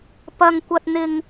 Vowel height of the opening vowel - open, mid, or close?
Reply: open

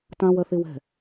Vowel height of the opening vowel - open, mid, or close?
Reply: open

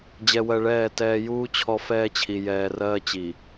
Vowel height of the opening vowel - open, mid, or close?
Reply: mid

